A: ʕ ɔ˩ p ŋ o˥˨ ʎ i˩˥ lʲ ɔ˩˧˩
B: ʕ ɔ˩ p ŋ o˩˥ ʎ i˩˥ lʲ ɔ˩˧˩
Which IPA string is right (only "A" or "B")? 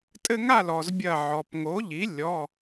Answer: B